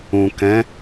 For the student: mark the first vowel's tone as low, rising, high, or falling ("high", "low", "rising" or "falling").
low